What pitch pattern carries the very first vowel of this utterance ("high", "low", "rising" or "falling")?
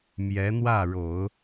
rising